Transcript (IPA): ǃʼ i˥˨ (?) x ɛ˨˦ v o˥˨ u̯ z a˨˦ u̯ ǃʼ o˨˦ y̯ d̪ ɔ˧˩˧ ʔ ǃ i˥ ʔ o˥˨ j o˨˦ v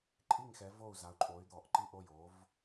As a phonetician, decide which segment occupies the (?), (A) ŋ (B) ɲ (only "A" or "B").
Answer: A